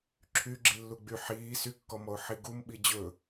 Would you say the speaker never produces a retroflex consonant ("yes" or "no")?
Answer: yes